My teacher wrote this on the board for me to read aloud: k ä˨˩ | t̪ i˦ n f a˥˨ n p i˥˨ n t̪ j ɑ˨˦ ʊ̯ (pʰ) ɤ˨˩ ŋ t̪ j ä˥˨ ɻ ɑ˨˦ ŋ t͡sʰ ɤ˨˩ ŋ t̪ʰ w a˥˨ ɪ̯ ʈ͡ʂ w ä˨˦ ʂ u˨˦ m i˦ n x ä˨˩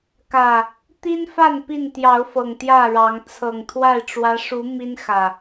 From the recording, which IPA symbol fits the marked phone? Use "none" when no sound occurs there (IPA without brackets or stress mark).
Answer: f